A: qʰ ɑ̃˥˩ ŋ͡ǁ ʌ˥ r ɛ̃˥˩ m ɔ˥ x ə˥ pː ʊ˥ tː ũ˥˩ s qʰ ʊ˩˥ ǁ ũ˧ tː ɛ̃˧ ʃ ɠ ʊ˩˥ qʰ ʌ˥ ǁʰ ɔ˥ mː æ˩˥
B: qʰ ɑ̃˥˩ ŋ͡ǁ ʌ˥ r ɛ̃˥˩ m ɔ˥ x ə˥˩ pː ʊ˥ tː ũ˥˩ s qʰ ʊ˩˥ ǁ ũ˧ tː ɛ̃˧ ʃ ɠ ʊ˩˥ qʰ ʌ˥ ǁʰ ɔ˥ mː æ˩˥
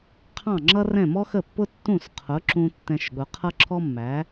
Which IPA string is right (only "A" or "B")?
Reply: B